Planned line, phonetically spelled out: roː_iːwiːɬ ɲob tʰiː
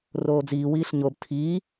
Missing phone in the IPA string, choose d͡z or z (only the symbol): d͡z